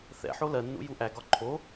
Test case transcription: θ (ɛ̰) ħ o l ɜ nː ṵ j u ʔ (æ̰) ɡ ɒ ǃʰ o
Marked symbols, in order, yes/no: yes, no

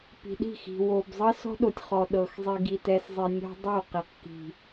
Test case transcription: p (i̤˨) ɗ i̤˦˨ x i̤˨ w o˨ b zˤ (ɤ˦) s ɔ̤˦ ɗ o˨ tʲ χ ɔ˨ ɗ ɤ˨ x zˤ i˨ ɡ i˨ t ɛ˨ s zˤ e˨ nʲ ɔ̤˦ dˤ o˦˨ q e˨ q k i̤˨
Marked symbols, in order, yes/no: yes, yes

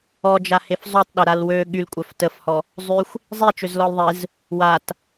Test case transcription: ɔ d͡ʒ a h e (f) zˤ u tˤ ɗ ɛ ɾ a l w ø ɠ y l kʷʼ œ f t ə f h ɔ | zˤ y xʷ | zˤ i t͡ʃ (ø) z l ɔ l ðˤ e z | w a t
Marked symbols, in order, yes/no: yes, yes

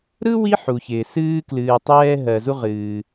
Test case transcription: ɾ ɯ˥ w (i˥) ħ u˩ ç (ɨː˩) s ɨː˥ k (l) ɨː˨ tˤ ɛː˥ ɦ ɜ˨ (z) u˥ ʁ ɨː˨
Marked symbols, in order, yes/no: no, no, yes, yes

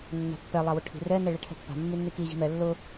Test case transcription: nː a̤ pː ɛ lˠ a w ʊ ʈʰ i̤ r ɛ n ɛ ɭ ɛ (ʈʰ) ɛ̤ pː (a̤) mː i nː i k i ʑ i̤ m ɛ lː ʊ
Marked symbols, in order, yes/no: yes, yes

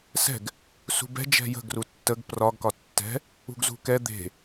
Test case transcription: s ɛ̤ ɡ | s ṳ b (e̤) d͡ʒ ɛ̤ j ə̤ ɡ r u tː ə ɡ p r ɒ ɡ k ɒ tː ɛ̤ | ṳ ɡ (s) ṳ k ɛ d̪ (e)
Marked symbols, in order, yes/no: no, no, no

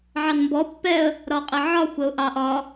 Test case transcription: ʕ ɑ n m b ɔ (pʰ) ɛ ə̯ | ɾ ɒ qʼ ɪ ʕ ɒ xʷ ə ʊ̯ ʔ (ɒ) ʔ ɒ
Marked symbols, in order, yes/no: no, no

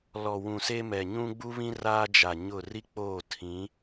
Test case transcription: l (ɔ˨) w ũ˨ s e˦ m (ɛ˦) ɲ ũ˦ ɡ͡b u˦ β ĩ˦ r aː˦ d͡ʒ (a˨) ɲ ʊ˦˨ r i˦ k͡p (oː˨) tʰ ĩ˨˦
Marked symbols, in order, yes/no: yes, no, yes, no

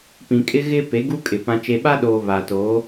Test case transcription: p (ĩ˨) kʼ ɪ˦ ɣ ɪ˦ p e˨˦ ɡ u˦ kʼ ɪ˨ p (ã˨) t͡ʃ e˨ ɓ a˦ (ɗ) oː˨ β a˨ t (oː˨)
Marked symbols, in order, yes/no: yes, yes, yes, no

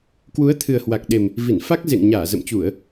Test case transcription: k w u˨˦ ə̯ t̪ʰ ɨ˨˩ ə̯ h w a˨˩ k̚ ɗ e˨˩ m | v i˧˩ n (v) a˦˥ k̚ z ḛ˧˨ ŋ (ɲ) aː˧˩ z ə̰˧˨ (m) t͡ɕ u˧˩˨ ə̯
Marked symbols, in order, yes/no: no, yes, yes

